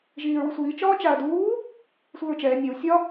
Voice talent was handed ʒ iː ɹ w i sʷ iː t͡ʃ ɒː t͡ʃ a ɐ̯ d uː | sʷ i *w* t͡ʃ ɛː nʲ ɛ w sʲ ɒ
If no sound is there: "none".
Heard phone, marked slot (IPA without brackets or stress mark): ɹ